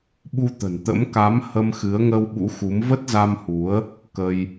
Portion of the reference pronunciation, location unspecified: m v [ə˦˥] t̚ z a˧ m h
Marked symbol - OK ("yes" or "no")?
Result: yes